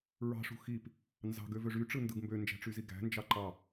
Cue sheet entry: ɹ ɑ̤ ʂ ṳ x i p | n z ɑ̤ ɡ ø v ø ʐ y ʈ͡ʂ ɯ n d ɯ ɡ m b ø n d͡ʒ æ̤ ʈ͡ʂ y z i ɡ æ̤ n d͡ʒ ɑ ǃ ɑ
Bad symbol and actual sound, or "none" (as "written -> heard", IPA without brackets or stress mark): none